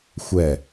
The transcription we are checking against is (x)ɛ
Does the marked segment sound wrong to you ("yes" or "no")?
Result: yes